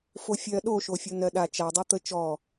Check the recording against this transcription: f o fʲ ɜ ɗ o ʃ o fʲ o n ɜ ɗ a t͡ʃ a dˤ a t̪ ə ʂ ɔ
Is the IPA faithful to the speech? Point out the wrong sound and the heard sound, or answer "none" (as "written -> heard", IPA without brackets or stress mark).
ʂ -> t͡ʃ